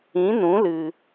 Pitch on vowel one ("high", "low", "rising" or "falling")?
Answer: rising